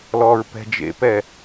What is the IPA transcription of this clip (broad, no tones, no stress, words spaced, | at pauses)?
lɔːɹpɛ̤d͡ʒḛpɛ